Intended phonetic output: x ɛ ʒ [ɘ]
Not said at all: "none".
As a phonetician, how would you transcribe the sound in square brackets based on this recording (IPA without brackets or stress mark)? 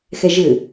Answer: ɘ